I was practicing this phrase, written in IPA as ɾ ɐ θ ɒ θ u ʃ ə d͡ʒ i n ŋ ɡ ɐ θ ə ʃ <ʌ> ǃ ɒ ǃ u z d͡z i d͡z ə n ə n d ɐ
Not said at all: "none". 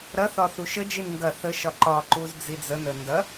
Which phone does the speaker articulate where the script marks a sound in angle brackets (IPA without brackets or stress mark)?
ɒ